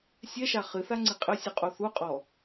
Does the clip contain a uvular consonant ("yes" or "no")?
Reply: yes